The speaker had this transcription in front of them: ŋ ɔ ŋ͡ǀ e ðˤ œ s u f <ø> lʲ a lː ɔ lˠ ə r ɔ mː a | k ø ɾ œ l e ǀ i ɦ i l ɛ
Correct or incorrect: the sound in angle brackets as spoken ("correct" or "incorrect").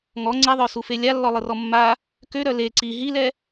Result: incorrect